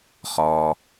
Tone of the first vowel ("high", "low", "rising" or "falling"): low